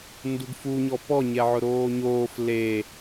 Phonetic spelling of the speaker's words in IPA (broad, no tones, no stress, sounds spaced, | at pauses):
n d u ɡ f u ɲ ɔ p ɔ ɲ ɛ ʕ ʊ ɾ oː ɲ oː f l e